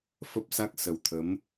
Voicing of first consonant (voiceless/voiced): voiceless